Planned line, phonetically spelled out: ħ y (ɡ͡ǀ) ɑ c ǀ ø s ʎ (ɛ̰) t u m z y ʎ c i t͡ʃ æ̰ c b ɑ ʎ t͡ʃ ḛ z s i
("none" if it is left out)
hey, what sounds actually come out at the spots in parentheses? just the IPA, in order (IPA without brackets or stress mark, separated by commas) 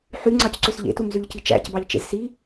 ŋ͡ǀ, ḛ